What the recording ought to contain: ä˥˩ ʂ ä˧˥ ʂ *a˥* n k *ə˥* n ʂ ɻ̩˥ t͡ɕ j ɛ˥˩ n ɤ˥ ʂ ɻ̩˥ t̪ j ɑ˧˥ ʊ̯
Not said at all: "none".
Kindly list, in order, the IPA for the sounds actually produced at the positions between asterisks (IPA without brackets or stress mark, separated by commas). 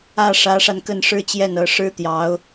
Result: a˧, ə˥˩